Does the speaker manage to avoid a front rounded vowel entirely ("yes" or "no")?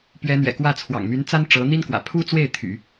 no